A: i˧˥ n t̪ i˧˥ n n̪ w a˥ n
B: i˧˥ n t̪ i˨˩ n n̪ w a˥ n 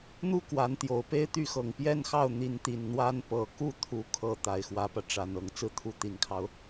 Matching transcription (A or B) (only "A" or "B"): B